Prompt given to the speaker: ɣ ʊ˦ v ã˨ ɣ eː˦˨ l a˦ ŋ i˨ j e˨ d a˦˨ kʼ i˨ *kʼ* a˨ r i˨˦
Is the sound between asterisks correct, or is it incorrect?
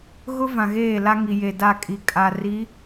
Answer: correct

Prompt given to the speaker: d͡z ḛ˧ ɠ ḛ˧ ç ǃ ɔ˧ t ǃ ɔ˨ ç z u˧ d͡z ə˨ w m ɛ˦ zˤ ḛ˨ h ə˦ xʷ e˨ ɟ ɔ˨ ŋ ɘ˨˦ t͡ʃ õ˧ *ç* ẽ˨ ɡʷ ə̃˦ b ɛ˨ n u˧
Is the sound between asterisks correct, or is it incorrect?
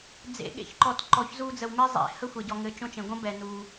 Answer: incorrect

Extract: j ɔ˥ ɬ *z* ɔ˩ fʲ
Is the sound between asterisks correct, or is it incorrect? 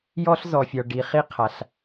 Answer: correct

